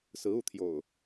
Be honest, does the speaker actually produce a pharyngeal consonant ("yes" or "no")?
no